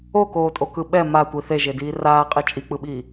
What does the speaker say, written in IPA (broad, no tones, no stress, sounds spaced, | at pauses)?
o k oː tʼ o k ɯ ɓ ɛ m a tʷ i θ e ʒ e d iː r aː qʼ i t͡ʃʼ i k͡p ɯ ɓ iː